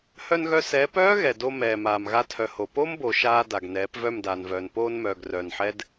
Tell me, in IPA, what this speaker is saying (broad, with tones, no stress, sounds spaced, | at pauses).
h œ˧ n ɣ œ˧ s ɛː˨˦ p œː˦ ɣ ɛ˨ d o˧ m ɛː˨ m aː˨ m ɣ a˧ tʰ œ˨ h o˨ p o˦ m b o˨ ʃ aː˧ d a˨ ɡ n ɛː˨˦ p v œ˦˨ m d aː˨ n v œː˨ n p oː˧ n m œː˨ ɡ r œː˨ n ħ ɛ˦ d